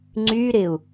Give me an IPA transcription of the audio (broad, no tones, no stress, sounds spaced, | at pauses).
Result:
ŋ͡ǀ y ɾ ɪ u̯